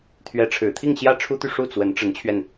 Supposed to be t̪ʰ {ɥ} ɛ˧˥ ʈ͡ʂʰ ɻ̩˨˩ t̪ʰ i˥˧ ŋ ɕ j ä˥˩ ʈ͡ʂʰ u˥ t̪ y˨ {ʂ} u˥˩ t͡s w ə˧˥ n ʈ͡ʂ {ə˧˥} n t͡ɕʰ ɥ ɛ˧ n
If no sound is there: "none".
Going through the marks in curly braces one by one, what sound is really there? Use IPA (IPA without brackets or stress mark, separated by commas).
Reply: ɥ, ʂ, ə˧˥